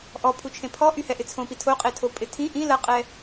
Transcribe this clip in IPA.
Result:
ʔ ɔ pʰ u t͡ʃʰ ẽ pʰ ɔ ʔ y h ɛ ʔ ɪ t͡sʰ õ p i tʰ o qʼ e tʰ o pʼ ɪ tʰ ĩ ʔ ĩ l ɐ qʼ ɛ

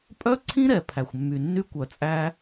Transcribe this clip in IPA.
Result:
pʼ œ˦ ǀʰ ĩ˦ ɾ ɛ˨ pʰ æ˨ xʷ mː y˨ nː y˦ kʷ œ˨ t͡sʼ æ˦

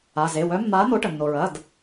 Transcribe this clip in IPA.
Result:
a˩˧˩ z e˩˧˩ w œ˨˥ mː aː˨˥ n̪ o˨˥ ʈ ə˩ nː o˩ ɹ ɐ˩˧˩ d

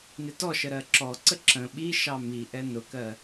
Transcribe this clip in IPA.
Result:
n ɪ t ɔ ʃ ə ɾ ɜ ǁ ɔ ǀ ə ǁ ə̃ ɓ i ʃ ɑ m i ʔ ɛ n ʊ k ɜ

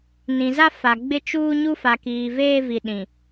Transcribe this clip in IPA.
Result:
n ĩ˨ z a˦ f a˨ ɡ͡b ɪ˦˨ t͡ʃ uː˦ ɲ u˦ f a˨ k iː˨ v eː˦ v i˨ ɗ ĩ˨

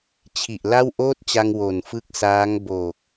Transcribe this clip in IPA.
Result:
t͡ɕʰ i˨˩ ʔ l a˥˩ w ʔ oː˥˩ t̚ t͡ɕ a˧ ŋ w o˨˩ n f ɯ˦˥ k̚ s aː˦˥ ŋ b oː˨˩ k̚

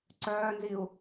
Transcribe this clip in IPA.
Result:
ǀ œː n z i u̯

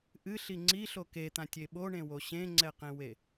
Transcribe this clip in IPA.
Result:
ʔ ɨ ɬ i ŋ͡ǀ i ɬ o k e t̪ ã tʲ e ɓ o ɳ ẽ w o ɕ ẽ ŋ͡ǀ ɛ q ẽ w e

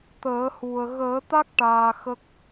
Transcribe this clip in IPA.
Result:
t̪ əː˨˩˦ h u˨˩ ə̯ ɣ əː˨˩˦ t̪ a˦˥ k̚ ʈ aː˨˩ x ə˦˥ k̚

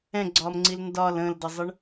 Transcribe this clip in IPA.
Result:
ɛ̃ ɡ͡ǀ ɒː m ŋ͡ǀ i l n d ɒ l ə̃ː l d ʌ zˤ ə ɳ

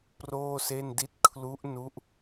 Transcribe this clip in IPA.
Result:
p r oː˥˩ s e˥˩ n d i˥˩ t̚ kʰ l u˦˥ ʔ n u˦˥ ʔ

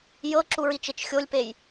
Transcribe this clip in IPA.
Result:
j ɤ ǁ u ɹ i t͡ʃ e t͡ʃ xʲ o lʲ p e j

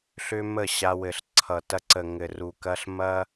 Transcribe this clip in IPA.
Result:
ɬ ʏ˦ m ə˦˨ ɕ a˧ w ɘ˨ ɬ ǀʰ ʌ˨ t ɐ˧ ǀ ə˨ ŋ ɘ˨ r u˨ k ɐ˧ ɬ m ɐ˦

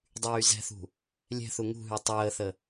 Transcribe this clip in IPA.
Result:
dˤ yː z ɛ̤ θ ṳ | lʲ ɛ̤ θ u ŋ ṳ ɦ y tˤ əː θ ə

